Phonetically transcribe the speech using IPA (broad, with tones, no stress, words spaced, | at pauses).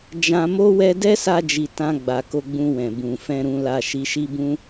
d͡ʒã˧mo˦wɛ˦ dɛ˦sa˧d͡ʒi˨ tã˧ɡ͡ba˨ ko˧ɡ͡bũ˧wɛ̃˨ bũ˨fɛ̃˧ɾũ˧la˧ ʃi˧ʃi˦bũ˦